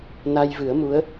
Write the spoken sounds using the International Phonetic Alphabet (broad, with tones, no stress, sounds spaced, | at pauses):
n a˧ j v ɨ˨˩˦ ə̯ m u˧˥ ə̯